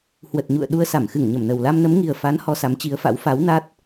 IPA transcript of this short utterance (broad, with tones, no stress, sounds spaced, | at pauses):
h w ə˨˩ t̚ ɲ ṵ˧˨ ə̯ ɗ u˧ ə̯ s a˧˩ m x ɨ˧˩ ŋ ɲ ə˧˩ m n ə˨˩ w l a˧ m n ə˨˦ m ŋ i˨˩ ə̯ f a˨˦ n h ɔ˧ s a˨˦ m t͡ɕ i˨˦ ə̯ f a̰˧˥ w f a˨˦ w n a˦˥ t̚